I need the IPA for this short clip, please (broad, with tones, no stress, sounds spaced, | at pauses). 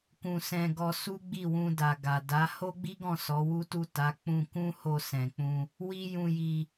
k ũ˧ s ɛ̃˧ ɡ ɔ˧ s u˦ ɡ͡b i˦˨ w ũ˧ d a˨ ɡ a˨ d a˨˦ h o˦ ɡ͡b i˦ ɡ ɔ̃˦˨ s ɔ˨˦ w u˦ t u˦˨ t a˨˦ k͡p ũ˧ k ũ˦ h o˧ s ɛ̃˨ k͡p ũ˧ | w i˦ j ũ˧ j i˧